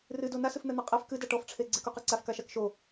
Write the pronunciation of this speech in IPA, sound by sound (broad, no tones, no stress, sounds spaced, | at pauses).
r ɨ d o n a s ɨ f n̪ ɛ n̪ ɛ qʼ ɛ f k ɨ d a ʈ ɔ f ʈ͡ʂʰ e ɡ͡ǀ e k u q e ǀ a f k a ʃ a k ʃ o